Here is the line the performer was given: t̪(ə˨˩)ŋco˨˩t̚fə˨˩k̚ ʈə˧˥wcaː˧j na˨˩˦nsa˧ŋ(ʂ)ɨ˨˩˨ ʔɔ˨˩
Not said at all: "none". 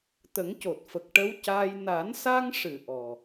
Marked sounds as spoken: ə˨˩˦, ʂ

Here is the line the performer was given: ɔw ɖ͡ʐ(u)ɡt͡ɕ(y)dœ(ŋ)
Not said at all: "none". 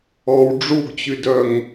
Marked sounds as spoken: u, y, ŋ

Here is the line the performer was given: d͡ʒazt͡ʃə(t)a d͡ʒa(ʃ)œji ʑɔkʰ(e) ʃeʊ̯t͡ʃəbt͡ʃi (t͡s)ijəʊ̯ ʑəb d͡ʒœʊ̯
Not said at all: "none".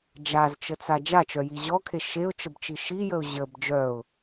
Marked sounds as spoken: t͡s, t͡ʃ, e, ʃ

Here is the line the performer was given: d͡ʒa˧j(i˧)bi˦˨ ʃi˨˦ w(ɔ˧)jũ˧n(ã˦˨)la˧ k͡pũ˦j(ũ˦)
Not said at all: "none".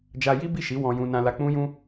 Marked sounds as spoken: i˦, ɔ̃˧, ã˧, ũ˦

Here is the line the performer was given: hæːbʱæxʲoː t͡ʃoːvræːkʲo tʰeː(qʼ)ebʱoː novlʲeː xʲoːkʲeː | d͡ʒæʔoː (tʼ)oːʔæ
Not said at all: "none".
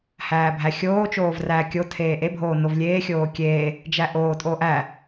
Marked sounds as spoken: ʔ, tʼ

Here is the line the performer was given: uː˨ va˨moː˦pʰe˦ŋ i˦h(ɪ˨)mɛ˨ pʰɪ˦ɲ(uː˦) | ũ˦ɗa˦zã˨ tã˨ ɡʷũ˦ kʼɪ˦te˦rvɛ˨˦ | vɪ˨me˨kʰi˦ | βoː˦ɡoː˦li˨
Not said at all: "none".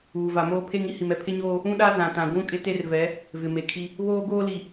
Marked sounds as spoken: i˨, oː˦

